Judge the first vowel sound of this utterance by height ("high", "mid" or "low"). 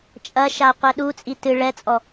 low